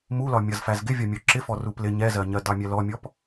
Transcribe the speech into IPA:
m u l ɒ mʲ ʌ z f æ z ɡ ɪ vʲ ɒ mʲ ɔ ǁ ɪ f ɔ r u p l ɪ ɲ ɛ z ɜ ɲ ɜ d ɑ mʲ ɛ l ɔ mʲ ɔ p

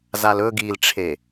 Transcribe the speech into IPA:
z a l ɵ ɡ i l ʈ͡ʂʰ e

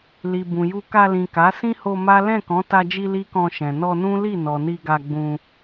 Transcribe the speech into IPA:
l i˨ b ũ˨ j u˧ k a˧ l ĩ˨ k a˨˦ s ĩ˦ h o˧ m a˦ l ɛ̃˦˨ k ɔ̃˨˦ t a˧ d͡ʒ i˧ l i˦ k ɔ̃˧ ʃ ɛ̃˨ n ɔ˧ n ũ˦ l i˦˨ n ɔ˨ n i˧ ɡ a˧ ɡ͡b ũ˧

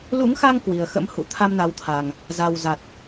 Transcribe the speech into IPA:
l ṵ˧˥ ŋ x a˧ ŋ k w i˨˩ ə̯ x ə̰˧˥ m h ṵ˧˨ t̪ʰ a˧ m n a˨˦ w t̪ʰ a˨˩ ŋ | z a˨˩ w z a˨˩ t̚

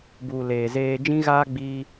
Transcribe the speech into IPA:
b u˨ l eː˨ z eː˧ d͡ʒ ĩ˦ ɣ aː˦ ɡ͡b iː˧

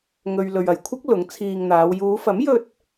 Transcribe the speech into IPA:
ŋ ɵ˨ ɥ l ɵ˨ ɥ ɐ˨˩ j kʷʰ ɪ˥ k̚ l ʊ˨˥ ŋ t͡sʰ iː˧ ŋ n̪ aː˨˧ w j uː˨˧ f ɐ˨˥ m j ɵ˧ t̚

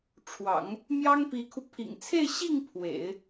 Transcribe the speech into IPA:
ʈ͡ʂʰ w ɑ̰˨˩˦ ŋ | m j ɑ˥ ŋ p i˧˥ kʰ u˧ pʰ ḭ˨˩ ŋ t͡sʰ e˥˧ ɪ̯ ɕ i˥˩ ŋ pʰ w ḛ˨˩˦ ɪ̯

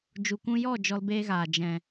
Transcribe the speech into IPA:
d͡ʒ u˨ kʷ ũ˧ j ɔ˦˨ d͡ʒ ɔ˧ l b eː˧ ɣ aː˨ d͡ʒ ɛ̃˨

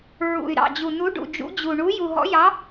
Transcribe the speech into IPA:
ɹ ṵ˨˩ y̯ ɾ ɑ̰˨˩ d͡ʑ u˨˩ n u˨˦ ɖ ṵ˨˩ d͡ʒ ṵ˨˦ d͡ʑ u˨˩ ɳ u˨˦ j u˨˩ ɦ ɔ̰˨˦ j ɑ˨˦

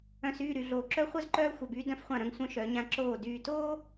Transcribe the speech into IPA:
œ̃˨ s yː˦˨ ɾ y˨ ɮ oː˨ ǁ œ˦ χʷ œ˦ z ǃ œː˦ xʷ œ˨ b yː˦ d œ̃˦ f χʷ ã˦˨ ɾ œ̃˦ ŋ sʷ œ̃˦ ʃ œ˨˦ ɲ ã˦ ǁ oː˦˨ d yː˨ t oː˦

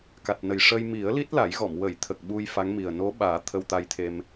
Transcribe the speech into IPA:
k a˨˩ t̚ n ə˨˩ j ʂ əː˧ j m i˨˩˦ ə̯ l i˦˥ t̚ l a˨˩˦ j ɣ ɔ˨˩˨ m w ə˨˩˨ j t̪ʰ ə˨˩ k̚ ɓ u˧ j f a˧˥ ŋ m i˨˩ ə̯ n o˧˥ ɓ aː˨˩˦ t̪ʰ ə˧ w t̪ a˧ j t̪ʰ e˧ m

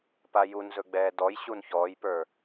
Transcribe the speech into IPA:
p a j u n z ɵ ɡ͡b ɛː d ɔ j ɕ u n ç ɔː j p ə˞

